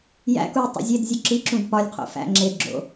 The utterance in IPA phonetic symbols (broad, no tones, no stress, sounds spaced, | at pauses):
j æ̰ k u i̯ tˤ o̰ zʲ e d zʲ u ǁ i ǁ ũ d p ɒ lʲ qʰ o̰ f æ̰ ŋ͡ǁ e d ɡ͡ǁ o̰